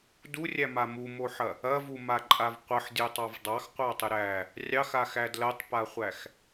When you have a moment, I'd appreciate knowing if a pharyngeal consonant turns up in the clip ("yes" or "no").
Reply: yes